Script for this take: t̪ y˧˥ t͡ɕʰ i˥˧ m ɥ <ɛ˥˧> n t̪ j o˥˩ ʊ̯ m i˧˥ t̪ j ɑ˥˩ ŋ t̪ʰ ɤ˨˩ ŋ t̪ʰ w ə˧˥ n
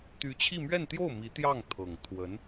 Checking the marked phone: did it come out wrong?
no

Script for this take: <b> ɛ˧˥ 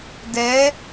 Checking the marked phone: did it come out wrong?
yes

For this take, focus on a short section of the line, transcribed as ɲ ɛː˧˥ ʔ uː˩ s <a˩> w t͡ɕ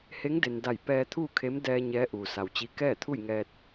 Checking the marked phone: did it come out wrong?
no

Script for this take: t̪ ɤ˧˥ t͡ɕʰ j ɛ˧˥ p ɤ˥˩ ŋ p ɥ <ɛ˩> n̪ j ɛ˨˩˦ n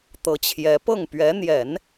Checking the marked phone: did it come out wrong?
yes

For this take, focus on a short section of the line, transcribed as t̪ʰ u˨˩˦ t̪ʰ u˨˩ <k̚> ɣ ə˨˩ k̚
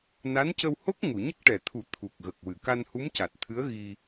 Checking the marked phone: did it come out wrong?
no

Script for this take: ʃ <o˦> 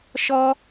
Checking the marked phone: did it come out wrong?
yes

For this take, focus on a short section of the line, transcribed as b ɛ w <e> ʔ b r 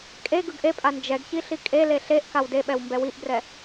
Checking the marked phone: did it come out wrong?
yes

